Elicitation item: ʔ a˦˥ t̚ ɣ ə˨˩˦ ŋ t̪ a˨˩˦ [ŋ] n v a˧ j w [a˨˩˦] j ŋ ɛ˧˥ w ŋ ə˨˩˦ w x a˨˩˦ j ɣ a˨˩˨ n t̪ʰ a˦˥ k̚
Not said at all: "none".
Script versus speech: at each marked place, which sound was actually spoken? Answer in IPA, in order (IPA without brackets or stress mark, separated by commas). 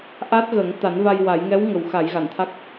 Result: none, a˨˩˦